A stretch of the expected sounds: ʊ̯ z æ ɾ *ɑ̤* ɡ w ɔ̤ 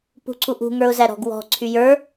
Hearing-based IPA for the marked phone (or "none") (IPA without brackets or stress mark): ɔ̤